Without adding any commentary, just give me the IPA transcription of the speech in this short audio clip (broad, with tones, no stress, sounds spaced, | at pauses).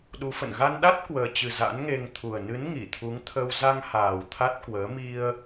ɗ u˨˦ f ə̰˧˨ n ɣ a˧ n ɗ a˦˥ t̚ k w əː˨˩ t͡ɕ ɨ˨˩ z a̰˧˥ n ŋ e˧ ŋ t̪ʰ u˨˩ ə̯ n ɨ˨˦ n ŋ i˧˩ t̪ʰ u˨˦ ŋ t̪ʰ ə˧ w z a˧ ŋ h aː˨˩ w t̪ʰ a˦˥ t̚ k w əː˨˦ m i˧ ə̯